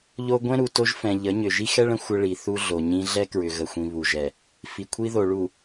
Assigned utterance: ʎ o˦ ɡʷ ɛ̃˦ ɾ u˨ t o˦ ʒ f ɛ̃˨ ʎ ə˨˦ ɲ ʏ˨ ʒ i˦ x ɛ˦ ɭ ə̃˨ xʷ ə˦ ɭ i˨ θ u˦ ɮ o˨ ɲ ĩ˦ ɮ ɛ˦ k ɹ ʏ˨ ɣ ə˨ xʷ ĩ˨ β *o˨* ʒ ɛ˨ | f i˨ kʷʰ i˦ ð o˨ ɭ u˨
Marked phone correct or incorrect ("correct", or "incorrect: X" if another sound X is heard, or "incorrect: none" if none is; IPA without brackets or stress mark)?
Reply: incorrect: u˨